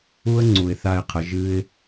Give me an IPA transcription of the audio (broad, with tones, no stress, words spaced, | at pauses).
u˥ə̯ŋ͡ǀu˩ɪ̯ θa˧ɪ̯qʰə˩˧ ʒɨ˥ɪ̯